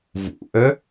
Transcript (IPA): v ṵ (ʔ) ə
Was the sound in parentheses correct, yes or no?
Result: yes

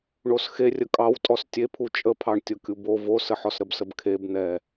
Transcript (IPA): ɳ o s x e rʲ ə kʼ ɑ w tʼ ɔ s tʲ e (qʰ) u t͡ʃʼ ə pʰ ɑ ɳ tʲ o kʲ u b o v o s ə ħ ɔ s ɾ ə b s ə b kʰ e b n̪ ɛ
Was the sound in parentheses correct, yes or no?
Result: no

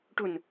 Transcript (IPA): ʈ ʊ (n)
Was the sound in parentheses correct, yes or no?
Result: yes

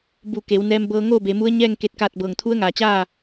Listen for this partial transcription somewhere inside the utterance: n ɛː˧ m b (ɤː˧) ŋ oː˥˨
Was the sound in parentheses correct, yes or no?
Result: yes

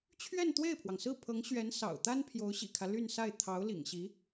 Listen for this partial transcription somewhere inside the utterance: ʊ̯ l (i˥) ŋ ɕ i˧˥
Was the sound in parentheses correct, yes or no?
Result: no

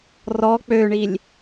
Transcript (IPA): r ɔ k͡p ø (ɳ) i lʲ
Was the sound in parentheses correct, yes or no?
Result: yes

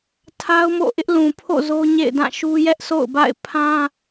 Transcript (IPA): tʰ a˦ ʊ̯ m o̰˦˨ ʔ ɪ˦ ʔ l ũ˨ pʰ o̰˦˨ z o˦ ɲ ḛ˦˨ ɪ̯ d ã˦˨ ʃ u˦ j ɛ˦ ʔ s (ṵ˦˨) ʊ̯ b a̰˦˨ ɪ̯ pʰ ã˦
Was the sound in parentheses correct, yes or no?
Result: no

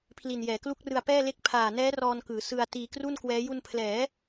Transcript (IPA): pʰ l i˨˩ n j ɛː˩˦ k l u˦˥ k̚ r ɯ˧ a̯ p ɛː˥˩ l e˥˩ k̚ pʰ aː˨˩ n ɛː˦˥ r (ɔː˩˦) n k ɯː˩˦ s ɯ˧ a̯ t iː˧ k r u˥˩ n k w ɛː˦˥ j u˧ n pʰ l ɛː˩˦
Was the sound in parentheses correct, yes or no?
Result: no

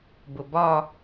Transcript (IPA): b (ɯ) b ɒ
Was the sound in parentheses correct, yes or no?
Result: no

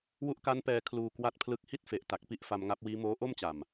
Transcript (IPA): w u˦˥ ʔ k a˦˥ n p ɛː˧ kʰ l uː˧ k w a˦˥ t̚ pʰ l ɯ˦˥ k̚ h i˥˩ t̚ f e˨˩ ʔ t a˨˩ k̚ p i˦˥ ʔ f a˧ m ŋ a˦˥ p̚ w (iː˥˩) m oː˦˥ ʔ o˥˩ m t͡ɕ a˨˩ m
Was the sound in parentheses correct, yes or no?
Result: no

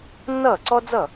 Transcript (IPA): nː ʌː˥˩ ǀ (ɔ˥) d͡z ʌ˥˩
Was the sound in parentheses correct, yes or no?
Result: yes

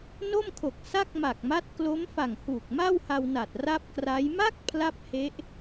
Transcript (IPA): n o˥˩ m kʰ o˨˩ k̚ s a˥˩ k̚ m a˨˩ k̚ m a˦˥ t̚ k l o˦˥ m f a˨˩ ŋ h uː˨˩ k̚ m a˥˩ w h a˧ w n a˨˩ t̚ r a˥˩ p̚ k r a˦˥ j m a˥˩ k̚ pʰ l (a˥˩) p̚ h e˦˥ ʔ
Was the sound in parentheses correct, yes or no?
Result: yes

